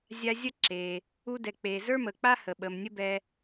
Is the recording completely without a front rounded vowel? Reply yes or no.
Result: yes